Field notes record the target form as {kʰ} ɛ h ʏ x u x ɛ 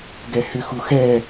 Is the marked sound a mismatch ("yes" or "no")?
yes